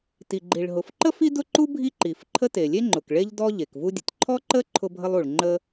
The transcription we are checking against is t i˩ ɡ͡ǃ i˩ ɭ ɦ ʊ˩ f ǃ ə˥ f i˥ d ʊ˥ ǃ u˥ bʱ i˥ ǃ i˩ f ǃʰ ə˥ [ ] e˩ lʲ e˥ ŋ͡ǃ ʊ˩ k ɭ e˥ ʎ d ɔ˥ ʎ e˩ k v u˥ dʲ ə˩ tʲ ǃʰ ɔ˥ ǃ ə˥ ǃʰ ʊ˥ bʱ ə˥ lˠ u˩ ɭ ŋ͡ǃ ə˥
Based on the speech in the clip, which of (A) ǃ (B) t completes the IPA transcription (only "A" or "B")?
B